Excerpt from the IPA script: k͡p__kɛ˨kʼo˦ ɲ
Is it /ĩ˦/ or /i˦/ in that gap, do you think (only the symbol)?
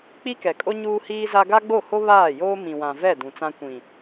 i˦